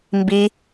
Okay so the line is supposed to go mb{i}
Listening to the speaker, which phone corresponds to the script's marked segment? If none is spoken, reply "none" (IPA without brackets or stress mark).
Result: i